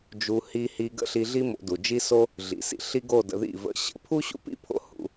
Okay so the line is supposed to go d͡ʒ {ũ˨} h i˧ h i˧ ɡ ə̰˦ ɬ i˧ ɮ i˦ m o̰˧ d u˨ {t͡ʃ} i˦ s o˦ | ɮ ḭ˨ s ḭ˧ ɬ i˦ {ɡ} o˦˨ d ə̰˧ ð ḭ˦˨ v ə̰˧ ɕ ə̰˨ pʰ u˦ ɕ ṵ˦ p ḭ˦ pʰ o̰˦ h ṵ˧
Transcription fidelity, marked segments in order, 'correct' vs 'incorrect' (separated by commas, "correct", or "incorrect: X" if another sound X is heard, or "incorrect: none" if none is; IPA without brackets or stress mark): incorrect: u˨, incorrect: d͡ʒ, correct